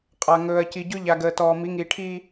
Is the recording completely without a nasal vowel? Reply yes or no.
yes